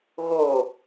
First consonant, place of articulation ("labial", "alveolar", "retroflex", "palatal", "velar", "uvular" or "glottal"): velar